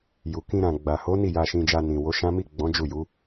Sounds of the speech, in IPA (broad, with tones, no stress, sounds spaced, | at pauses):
j u˨ k ĩ˧ ɾ ã˨ ɡ͡b a˨ h o˨˦ n i˦˨ j a˧ ʃ ĩ˧ d͡ʒ a˧ n ĩ˨ w o˨˦ ʃ ã˦ m i˦˨ ɡ͡b ɔ̃˨˦ d͡ʒ u˦˨ j u˨˦